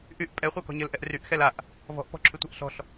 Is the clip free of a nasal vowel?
yes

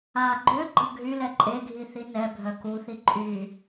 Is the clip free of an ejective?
no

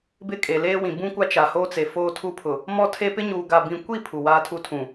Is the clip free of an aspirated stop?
no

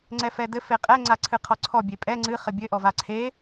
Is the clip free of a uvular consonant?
no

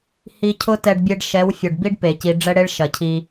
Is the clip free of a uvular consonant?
yes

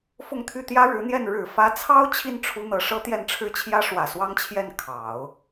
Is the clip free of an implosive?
yes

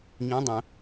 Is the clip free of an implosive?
yes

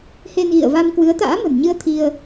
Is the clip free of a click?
yes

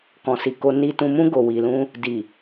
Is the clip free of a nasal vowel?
no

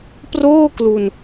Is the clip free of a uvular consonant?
yes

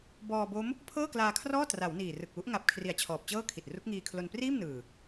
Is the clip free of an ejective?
yes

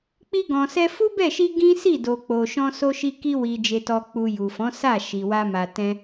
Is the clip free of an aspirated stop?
yes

